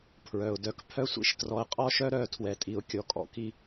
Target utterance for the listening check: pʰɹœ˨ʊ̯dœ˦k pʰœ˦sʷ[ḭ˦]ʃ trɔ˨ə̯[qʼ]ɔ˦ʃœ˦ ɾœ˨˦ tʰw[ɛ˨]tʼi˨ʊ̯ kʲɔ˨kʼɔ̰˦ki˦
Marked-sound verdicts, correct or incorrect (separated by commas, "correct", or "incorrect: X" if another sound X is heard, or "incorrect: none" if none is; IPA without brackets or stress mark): correct, correct, correct